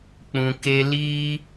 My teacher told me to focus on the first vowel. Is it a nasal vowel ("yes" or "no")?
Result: yes